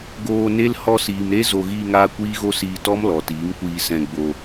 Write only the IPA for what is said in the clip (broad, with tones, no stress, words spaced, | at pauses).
ɡoː˧ne˦l hɔ˧siː˨mɾe˦ zo˧ ɣiː˧ŋaː˧ kʷiː˦ɣo˦siː˧ tɔ˦m lɔ˨tiː˨˦ŋkʷiː˧ sɛ̃˧ɡ͡bo˧